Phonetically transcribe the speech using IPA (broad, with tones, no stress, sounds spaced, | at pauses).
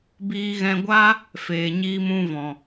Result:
b iː˧ ɣ ɛ̃˧ ɡʷ a˦ | f eː˨ ɲ iː˧ m ũ˧ v ɔ̃˨